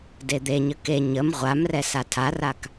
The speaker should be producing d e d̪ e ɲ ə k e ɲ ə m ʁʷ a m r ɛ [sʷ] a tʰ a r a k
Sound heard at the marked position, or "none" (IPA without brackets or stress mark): s